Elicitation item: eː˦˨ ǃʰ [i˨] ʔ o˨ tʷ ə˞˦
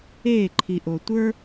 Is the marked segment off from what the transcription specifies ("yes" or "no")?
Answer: no